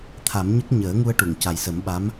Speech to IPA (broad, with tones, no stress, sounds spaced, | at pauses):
t̪ʰ a˨˩˦ m ɲ ə˦˥ k̚ ɲ əː˨˩˦ ŋ u˧ ə̯ ʈ u˨˩˨ ŋ c a˨˩ j s ə˨˩˦ m ɓ a˧˥ m